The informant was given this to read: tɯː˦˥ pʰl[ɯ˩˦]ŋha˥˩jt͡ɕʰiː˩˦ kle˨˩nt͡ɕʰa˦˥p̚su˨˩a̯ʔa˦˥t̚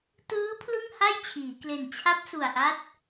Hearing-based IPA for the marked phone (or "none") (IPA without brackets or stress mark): ɯ˥˩